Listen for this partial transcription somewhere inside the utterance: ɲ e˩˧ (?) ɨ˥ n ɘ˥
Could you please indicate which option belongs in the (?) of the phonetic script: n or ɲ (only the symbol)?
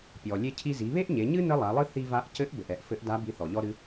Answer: ɲ